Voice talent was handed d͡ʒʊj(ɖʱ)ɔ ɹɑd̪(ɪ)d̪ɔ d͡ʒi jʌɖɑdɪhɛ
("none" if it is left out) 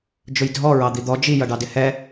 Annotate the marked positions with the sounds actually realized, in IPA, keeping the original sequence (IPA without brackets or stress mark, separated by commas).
dʱ, i